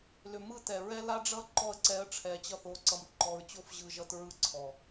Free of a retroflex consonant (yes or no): no